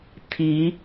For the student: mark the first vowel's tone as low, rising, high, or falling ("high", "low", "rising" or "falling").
rising